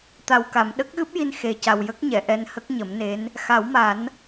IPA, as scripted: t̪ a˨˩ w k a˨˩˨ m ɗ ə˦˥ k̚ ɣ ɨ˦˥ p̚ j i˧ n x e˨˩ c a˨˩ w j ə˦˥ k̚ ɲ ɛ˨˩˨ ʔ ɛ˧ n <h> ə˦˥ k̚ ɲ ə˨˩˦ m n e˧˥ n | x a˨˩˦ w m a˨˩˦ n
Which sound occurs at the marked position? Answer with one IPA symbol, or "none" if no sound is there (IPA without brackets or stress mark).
h